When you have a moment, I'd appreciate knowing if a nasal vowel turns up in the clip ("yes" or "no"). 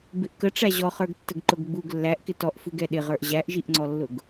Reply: no